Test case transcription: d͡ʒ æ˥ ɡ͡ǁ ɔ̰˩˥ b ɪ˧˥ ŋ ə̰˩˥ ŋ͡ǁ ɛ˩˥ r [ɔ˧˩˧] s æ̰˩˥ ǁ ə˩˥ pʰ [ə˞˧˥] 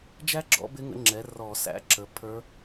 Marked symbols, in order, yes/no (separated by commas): yes, yes